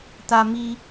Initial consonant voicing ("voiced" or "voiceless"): voiceless